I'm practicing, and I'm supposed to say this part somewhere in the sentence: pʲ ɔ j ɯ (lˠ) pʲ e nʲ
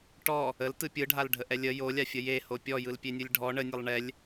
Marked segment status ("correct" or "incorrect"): incorrect